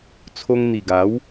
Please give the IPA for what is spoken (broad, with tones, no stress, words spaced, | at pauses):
t͡sʰo˧ŋn̪i˨˩ɡa˨˦w